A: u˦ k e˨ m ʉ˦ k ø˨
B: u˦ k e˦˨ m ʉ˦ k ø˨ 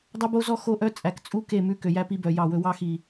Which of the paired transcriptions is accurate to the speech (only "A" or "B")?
B